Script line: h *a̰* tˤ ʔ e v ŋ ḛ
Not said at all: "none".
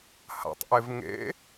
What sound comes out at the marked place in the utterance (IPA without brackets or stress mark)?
a̰